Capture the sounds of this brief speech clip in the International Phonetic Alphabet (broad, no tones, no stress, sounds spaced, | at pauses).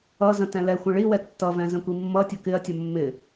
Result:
ʌ z ə̃ t ɛ̃ l ɛ xʷ ə̃ ɭ i w ɛ tː ʌ v ɛ̃ z ə̃ kʷ i mː ʌ tʲ ʌ k ɪ ɐ̯ tʲ ʌ mː ɪ